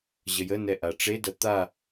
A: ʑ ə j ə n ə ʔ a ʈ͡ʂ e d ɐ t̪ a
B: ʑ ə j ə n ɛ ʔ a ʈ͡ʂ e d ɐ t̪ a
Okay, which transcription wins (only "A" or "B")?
B